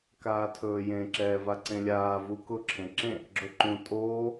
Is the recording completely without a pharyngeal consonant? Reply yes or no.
yes